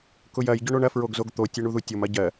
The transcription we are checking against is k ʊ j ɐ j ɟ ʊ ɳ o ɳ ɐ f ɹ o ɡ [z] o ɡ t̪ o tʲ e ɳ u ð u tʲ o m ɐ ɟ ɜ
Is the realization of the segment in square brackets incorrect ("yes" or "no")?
no